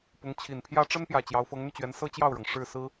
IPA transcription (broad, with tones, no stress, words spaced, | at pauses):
pʊ˧˥ŋ t͡ɕʰi˨˩npʰjä˥ ʈ͡ʂə˥npjä˨˩ t͡ɕjɑ˧˥ʊ̯fɤ˧˥ŋn̪y˧t͡ɕɥɛ˧˥n sɤ˥t͡ɕjɑ˥˩ʊ̯ɻɤ˩ŋ ʂɻ̩˥˩sɹ̩˥